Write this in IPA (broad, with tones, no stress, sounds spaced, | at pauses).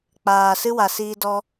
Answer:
k͡p aː˨ s ɨ˦ w a˨ s iː˧ d ɔ˧